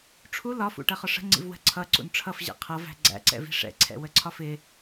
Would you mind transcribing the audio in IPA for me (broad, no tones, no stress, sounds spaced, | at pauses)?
ʈ͡ʂʰ u l ɒ f ṵ ʈ ɜ χ ɒ ʂ ə̤ ŋ͡ǀ ḭ v w ə̤ ǀʰ ʌ ǀ ṵ n ʈ͡ʂʰ ʌ f ʑ ɛ̰ qʰ ʌ v æ̤ ɡ͡ǀ æ̰ ǀ ɛ̰ v i̤ ʂ ɛ̰ ǀʰ ɛ̰ w ə ǀʰ ɒ f ɪ